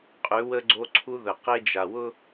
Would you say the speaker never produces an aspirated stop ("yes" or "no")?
no